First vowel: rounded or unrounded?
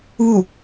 rounded